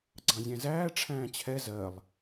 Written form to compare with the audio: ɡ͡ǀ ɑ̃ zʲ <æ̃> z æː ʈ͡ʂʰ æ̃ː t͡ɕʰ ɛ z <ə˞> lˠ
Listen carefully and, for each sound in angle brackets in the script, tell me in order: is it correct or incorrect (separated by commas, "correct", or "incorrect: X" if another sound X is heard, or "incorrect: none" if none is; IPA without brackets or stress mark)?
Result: correct, incorrect: ɜ